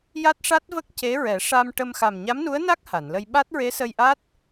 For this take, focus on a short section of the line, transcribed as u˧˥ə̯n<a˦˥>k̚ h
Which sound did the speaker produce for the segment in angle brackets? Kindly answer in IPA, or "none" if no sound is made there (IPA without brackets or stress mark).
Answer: a˦˥